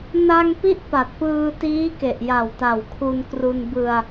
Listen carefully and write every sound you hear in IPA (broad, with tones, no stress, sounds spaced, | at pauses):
n a˧ ŋ p i˥˩ ʔ p a˨˩ t̚ p ɯː˧ t iː˦˥ k e˨˩ ʔ j a˨˩ w t a˨˩ w kʰ u˧ n k r u˧ n b ɯ˧ a̯